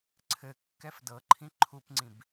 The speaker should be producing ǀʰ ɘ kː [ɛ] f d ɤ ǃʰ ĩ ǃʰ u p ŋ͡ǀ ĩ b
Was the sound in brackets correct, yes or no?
yes